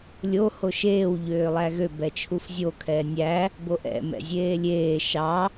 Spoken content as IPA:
lʲ o h o ʃ eː w ʎ øː lˠ æ ɣ ø b ɛ t͡ʃʰ u f zʲ o kʰ ɛː nʲ æ | b o ʔ ɛ̰ m ɛ̰ zʲ eː lʲ eː ʃ ɑ

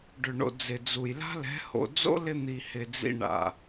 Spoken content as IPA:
ɖ ʏ˨ ɳ o̰˨ d͡z ɪ˨ d͡z u˨ j l a̤˦ l ɛ̤˨˦ h o̰˨ d͡z o̰˦ l ɪ˧ n̪ i˨ h ɪ˨ d͡z ḭ˧ ɳ a̰˨

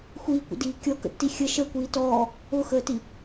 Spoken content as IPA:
xʷ iː kʷ ə̰ d iː kʲ ɔ k ə̰ tː i xʲ ə ʃ ə kʷ iː t ɔː | ʊ x əː t i

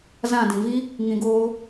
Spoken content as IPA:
z ã˦˨ d ĩ˨ v i˦ | ŋ ĩ˧ ɡ oː˦

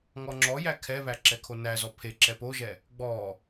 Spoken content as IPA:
ŋ ɔ ŋ͡ǁ ɔ j æ kʰ ɛ β æ ǁ ɛ kʰ o n æ z ɔ pʰ e ǁ ɛ p o ʒ ɛ | ɡ͡b ɔ

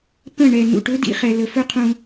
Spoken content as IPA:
p ə̃˦˨ ɳ ɛ˨ n ṵ˨ ʈ ɵ˦ d ḭ˧ χ ɛ˨ l ə˨ f ɵ˦ qʰ ũ˧

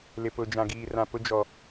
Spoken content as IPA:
l ɪ˨ p ʊ˨ d͡ʒ ã˨ ɡ iː˨ r ã˨ p ʊ˦ d͡ʒ ɔ˨

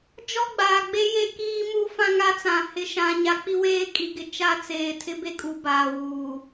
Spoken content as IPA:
d͡ʒ ɔ˦ ɡ͡b aː˨ ɡ͡b e˦ j e˦ k iː˦ m u˦ f ã˦ ŋ a˦ t͡s ã˨ h ɪ˨ ʃ ã˨ ɲ a˨˦ k͡p i˦ w eː˦ kʼ i˨ ɡ ɪ˨ t͡ʃ a˦ t͡s eː˨ tʰ ɪ˦ b e˦ kʼ u˨ b aː˨ w uː˨

